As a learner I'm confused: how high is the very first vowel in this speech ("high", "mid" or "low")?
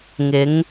high